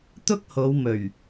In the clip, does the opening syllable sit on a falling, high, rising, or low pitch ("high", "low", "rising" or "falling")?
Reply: high